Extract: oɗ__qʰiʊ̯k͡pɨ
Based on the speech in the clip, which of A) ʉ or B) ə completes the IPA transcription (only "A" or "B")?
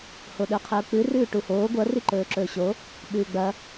A